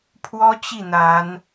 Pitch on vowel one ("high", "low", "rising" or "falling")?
high